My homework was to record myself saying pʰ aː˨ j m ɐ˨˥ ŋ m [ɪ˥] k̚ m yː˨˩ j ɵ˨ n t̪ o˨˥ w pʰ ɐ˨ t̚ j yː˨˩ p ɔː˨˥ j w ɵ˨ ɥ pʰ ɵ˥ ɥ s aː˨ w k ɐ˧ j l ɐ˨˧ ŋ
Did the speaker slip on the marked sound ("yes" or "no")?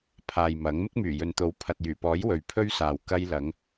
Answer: no